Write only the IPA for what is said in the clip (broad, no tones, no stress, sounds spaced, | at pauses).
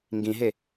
ŋ ɡ ĩ ɦ e